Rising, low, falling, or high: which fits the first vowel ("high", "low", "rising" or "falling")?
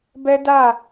high